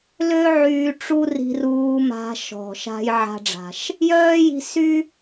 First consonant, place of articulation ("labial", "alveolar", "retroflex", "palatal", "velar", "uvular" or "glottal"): alveolar